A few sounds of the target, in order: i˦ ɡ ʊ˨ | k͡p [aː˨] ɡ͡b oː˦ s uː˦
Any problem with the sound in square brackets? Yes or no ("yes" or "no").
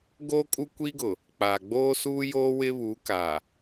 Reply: no